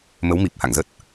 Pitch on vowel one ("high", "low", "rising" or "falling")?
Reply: rising